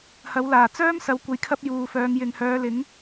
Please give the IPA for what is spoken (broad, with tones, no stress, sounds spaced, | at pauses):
h ɐ˨˥ w l aː˨˩ t͡s œː˥ m s ɐ˨˥ w kʷ ɐ˨˧ j kʰ ɐ˥ p̚ j uː˨ f œː˨˧ ŋ j ɪ˨ ŋ h œː˨˧ l ɪ˨˥ ŋ